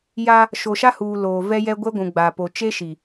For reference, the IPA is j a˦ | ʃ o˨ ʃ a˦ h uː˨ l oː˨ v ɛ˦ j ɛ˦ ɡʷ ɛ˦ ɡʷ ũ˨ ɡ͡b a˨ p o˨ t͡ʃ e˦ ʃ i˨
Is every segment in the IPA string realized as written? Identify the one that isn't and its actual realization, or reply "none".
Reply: none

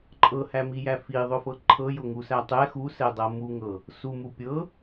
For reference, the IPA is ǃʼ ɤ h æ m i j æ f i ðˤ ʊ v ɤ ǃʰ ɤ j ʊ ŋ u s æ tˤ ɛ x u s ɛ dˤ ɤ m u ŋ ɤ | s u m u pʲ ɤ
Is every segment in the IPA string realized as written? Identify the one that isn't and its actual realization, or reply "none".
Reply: v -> f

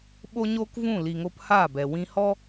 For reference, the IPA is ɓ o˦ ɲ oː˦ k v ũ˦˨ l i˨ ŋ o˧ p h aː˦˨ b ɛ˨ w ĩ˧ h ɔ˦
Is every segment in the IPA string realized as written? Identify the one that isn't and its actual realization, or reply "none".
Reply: none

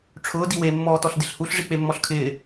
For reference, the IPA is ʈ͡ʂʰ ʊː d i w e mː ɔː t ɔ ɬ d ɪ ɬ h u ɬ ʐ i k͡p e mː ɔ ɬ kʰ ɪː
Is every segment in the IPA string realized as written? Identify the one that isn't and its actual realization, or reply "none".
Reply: none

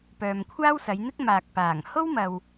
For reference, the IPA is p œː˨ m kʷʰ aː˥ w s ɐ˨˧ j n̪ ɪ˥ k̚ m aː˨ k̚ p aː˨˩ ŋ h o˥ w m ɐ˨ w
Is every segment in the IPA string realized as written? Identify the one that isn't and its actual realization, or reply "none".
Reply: none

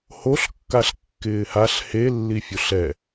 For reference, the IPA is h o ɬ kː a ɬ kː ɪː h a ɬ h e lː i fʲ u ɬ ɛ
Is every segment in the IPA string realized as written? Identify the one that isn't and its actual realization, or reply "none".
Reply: none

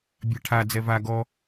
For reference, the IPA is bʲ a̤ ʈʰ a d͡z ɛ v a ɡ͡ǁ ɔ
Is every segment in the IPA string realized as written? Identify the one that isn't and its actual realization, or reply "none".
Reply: ɡ͡ǁ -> ɡ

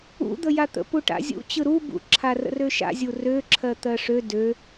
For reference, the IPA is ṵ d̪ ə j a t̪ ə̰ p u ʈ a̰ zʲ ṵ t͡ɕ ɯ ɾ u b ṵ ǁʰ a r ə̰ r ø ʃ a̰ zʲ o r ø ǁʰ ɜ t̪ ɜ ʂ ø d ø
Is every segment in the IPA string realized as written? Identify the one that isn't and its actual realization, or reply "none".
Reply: o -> u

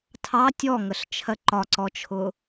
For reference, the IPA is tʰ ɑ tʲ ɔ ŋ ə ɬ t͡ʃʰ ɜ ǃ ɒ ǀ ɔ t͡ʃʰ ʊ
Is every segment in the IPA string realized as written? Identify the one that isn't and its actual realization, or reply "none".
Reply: none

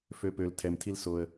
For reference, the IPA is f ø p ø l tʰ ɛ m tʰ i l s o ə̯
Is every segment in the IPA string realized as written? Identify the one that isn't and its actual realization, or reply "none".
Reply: none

